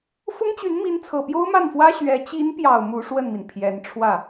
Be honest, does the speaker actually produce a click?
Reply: no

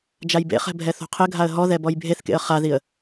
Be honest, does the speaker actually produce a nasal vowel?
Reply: no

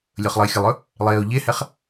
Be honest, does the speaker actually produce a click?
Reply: no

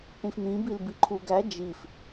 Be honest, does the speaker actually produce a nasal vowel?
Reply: yes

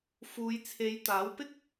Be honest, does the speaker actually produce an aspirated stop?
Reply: yes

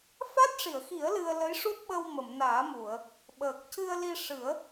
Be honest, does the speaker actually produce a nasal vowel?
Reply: no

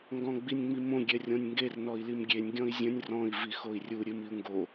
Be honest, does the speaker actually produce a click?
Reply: no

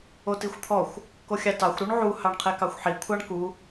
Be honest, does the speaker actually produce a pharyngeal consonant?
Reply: yes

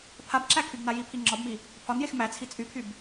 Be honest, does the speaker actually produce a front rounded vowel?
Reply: yes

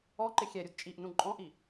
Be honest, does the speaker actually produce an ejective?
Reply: yes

